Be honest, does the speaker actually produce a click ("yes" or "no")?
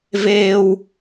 no